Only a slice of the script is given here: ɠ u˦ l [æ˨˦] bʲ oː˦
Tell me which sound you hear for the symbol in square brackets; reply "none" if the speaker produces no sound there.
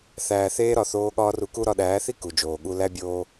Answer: æ˦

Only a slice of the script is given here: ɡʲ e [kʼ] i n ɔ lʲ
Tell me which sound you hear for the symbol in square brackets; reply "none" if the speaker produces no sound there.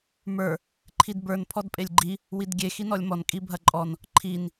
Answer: x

